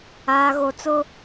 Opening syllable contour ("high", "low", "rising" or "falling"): low